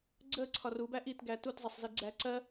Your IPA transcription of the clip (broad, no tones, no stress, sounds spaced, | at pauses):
ɡ͡ǀ əː ǀʰ ɒ r u b æ ʔ i t ɡ æ t u t zˤ ʌ sˤ z i ɡ͡ǀ æː ǀ ɜ